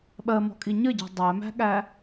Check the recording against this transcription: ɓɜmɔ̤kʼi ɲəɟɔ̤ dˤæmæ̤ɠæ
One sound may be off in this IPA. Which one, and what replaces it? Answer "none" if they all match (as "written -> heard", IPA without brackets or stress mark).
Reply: none